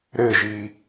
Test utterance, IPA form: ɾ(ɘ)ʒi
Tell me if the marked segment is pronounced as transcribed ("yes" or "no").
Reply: yes